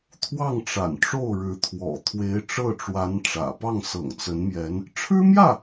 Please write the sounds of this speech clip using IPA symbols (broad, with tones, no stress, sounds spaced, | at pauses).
t̪ʰ w ɑ˥˩ ŋ ʈ͡ʂ a̰˨˩ n ʈ͡ʂ o˥˩ ʊ̯ ɻ ɻ̩˧˥ t̪ʰ w ɔ̰˨˩ t̪ʰ w e˧˥ ɪ̯ ʈ͡ʂ ɤ˥˩ ʈ͡ʂ w a˧˥ n ʈ͡ʂ ä̰˨˩ p ɑ˥˩ ŋ s ɤ̰˨˩ ŋ t͡s ə˧˥ n m j ɛ˧˥ n | ʈ͡ʂʰ ɻ̩˥ m j ä˥˩